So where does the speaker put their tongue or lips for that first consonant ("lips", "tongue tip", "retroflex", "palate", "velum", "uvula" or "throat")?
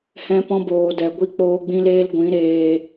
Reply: throat